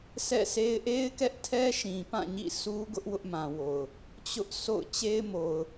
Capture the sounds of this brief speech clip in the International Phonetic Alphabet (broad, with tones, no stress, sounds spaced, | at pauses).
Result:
sʰ ɛ̰˦˨ sʰ e˦ ɪ̯ ʔ e˦ ɪ̯ k ɛ˦ ʔ tʰ ɛ˦ ʃ ĩ˨ p ã˦˨ ɲ ḭ˦˨ s u˦ ɡ ʊ˦ ʔ w ʊ˦ ʔ m ã˨ w o˨ ʊ̯ | t͡ɕ ʊ˦ ʔ s o̰˦˨ ʊ̯ t͡ɕ e˦ ɪ̯ m o˨ ʊ̯